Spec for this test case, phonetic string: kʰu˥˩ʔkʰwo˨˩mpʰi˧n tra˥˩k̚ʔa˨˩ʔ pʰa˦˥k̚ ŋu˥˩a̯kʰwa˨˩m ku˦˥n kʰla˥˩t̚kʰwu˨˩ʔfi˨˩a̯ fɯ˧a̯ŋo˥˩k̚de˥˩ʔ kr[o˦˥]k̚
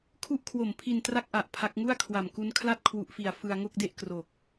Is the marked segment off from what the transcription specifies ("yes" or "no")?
yes